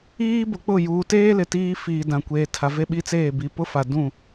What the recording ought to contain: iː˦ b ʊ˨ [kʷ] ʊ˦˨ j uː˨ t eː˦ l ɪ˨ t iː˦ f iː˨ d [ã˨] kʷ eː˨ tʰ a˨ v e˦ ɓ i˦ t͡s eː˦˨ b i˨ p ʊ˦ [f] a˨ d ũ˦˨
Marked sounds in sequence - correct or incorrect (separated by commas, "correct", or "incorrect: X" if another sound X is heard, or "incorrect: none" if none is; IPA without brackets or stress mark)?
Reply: incorrect: k͡p, correct, correct